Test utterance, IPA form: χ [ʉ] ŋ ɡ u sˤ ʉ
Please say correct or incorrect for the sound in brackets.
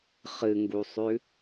incorrect